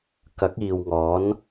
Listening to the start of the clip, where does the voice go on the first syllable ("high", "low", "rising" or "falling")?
rising